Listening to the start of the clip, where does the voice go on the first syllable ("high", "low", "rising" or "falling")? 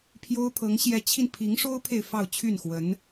high